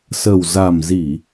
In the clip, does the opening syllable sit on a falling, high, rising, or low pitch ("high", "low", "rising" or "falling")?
low